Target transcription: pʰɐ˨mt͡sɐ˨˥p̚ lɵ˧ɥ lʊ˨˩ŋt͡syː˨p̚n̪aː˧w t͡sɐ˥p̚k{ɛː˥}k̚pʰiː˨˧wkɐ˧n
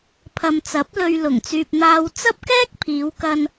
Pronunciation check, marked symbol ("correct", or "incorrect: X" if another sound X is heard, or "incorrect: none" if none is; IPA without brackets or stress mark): correct